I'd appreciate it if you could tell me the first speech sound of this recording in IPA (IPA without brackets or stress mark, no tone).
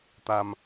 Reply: t̪